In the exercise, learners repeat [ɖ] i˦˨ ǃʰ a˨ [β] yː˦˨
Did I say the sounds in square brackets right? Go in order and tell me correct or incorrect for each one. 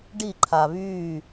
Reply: correct, correct

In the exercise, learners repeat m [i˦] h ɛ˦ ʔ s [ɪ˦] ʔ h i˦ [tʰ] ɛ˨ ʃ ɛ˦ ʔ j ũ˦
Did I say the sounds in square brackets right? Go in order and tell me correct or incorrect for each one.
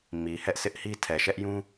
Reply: incorrect, correct, correct

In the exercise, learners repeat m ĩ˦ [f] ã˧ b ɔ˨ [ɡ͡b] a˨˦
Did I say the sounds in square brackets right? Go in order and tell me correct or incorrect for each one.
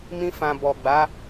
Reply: correct, correct

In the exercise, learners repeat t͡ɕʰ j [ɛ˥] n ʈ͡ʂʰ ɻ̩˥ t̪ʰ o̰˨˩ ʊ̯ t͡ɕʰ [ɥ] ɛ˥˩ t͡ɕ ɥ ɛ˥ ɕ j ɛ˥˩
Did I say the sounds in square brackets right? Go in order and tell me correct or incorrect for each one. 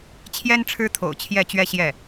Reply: correct, incorrect

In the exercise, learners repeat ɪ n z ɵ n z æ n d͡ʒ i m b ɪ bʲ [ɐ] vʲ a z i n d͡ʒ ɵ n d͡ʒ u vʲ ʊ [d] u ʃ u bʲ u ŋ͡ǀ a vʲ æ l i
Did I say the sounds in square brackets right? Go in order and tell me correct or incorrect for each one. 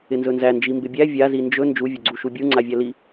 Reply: incorrect, incorrect

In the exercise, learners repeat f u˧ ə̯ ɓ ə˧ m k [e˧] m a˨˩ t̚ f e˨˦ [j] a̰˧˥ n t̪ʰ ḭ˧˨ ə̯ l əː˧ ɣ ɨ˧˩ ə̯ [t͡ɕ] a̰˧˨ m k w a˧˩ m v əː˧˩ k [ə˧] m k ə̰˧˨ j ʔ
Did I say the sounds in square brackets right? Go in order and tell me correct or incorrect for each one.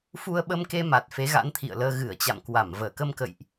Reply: correct, incorrect, correct, correct

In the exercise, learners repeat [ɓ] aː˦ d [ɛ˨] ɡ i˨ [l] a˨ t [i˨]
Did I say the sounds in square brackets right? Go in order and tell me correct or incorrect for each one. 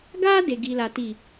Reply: incorrect, incorrect, correct, correct

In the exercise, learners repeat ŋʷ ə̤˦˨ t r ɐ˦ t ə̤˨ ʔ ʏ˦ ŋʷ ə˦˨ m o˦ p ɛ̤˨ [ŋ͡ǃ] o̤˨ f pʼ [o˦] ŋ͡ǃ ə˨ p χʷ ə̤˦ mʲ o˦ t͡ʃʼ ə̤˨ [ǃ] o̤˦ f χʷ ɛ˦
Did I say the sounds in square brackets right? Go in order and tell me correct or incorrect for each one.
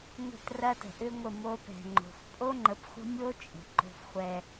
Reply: correct, correct, correct

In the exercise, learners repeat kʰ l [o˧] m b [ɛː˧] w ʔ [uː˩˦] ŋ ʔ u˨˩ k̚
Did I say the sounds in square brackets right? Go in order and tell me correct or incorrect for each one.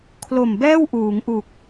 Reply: incorrect, incorrect, correct

